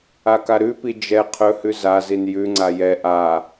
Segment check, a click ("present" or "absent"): present